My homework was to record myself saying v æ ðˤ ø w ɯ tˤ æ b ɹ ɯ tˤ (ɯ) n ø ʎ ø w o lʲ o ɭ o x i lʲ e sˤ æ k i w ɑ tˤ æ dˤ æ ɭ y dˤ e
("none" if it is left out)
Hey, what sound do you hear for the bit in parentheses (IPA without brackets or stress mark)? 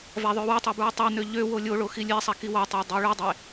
ɯ